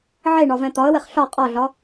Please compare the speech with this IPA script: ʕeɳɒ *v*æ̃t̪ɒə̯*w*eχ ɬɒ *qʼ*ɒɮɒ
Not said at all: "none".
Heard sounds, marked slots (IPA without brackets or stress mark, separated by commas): v, w, qʼ